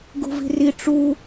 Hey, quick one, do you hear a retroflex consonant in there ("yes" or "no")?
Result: yes